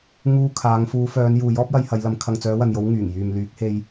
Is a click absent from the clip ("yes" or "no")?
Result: yes